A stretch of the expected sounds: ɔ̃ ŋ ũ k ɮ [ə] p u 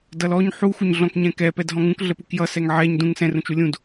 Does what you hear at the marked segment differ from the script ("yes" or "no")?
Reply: no